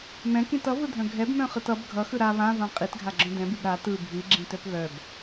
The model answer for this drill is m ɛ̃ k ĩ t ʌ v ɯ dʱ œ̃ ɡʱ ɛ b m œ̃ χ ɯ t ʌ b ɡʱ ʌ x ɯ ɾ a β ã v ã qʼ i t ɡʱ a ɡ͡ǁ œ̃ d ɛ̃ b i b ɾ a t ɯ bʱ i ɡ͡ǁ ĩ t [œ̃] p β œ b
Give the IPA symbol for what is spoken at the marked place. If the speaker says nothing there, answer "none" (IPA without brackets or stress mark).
œ